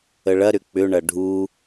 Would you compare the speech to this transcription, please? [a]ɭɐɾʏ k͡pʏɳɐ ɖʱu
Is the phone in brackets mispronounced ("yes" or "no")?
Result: yes